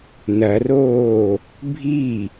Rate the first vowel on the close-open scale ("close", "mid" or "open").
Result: open